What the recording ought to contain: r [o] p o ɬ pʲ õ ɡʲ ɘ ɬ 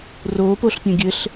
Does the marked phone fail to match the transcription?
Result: no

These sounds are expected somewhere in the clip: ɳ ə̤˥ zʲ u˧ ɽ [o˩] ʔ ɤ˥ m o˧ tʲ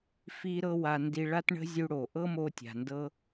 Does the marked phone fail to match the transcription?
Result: no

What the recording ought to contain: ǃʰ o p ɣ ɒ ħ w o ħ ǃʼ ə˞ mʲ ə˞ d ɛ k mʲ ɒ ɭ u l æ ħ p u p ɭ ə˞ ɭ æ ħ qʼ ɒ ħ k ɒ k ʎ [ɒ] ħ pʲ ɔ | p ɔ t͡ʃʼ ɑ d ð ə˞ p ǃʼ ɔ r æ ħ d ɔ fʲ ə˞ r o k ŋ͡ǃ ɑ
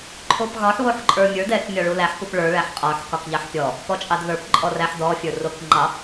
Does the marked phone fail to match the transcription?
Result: yes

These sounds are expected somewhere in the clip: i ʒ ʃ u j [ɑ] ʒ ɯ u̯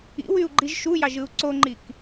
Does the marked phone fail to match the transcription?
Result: no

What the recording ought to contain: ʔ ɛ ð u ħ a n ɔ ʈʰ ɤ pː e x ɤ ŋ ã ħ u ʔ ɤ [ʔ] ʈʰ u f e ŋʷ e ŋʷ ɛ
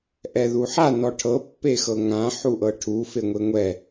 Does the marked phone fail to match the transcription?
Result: yes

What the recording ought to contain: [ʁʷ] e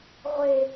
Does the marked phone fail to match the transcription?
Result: no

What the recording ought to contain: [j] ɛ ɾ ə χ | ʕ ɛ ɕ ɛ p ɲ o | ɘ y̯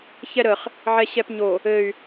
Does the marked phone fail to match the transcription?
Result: yes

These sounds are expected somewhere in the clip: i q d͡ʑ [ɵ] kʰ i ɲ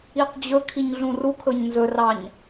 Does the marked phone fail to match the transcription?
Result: no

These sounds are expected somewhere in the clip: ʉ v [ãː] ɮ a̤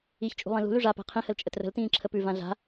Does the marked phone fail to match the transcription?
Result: yes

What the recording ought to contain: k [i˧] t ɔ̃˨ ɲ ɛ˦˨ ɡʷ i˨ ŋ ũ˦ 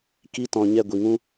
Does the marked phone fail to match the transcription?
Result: no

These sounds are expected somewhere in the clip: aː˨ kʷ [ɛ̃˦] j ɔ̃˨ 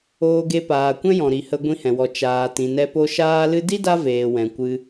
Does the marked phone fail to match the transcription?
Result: no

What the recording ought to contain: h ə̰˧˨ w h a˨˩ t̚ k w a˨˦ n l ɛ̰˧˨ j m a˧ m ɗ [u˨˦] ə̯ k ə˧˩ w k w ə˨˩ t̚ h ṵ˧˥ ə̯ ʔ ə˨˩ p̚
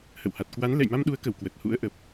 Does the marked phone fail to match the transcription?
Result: no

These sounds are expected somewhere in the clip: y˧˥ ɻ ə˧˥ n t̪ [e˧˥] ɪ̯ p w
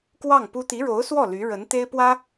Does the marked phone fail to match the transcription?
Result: yes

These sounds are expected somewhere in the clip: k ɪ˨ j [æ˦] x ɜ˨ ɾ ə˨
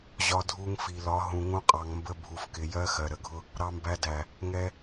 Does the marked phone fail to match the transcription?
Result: yes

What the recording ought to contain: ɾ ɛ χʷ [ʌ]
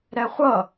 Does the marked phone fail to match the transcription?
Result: no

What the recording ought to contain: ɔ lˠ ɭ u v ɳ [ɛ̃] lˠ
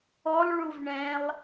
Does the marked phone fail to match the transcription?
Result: no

